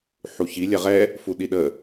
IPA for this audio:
ħ u ç i lʲ ɛ ʁ ɛ | f u ɗ i ɗ ə

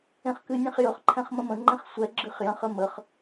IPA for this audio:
ẽ χ k ɨ nʲ ẽ χ j ɵ χ ǃʰ ɛ̃ χ m ə̃ m ə̃ ŋ͡ǃ ẽ χ sʷ ɛ ɡ͡ǁ ɨ χ j ə̃ χ ə m ə χ

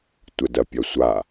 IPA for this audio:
tʷ ə d ɐ pʲ ɐ sʷ a

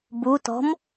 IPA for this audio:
b u t ɔ̤ m

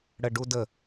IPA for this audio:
ɽ ə ɖ u d ə

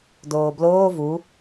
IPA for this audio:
d oː b l oː v u

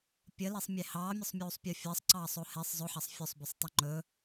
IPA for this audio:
pʲ ə l e sˤ mʲ e h ɑː mʲ ɵ sˤ mʲ uː sˤ pʲ u fʲ əː sˤ ǀ ɑː sˤ o h e sˤ zˤ ɵ ħ ɑ sˤ fʲ ɵ sˤ b o sˤ tˤ ɵ ŋ͡ǃ ɵ

